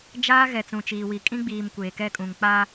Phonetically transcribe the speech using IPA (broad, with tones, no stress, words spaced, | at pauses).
d͡ʒaː˦ɣɛ˨ t͡sũ˨t͡ʃiː˨wi˨kʼĩ˦ ɡ͡biː˨m kʷeː˨kɛ˦kʼũ˨ŋ k͡paː˦